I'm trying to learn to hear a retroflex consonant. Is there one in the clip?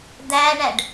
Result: yes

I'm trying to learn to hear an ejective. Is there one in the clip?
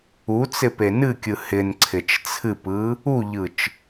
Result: no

